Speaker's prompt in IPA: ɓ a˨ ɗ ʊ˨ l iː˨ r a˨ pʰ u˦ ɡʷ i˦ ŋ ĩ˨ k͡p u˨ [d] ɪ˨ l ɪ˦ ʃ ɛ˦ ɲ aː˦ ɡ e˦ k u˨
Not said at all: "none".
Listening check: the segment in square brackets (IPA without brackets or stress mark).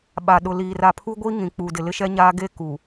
d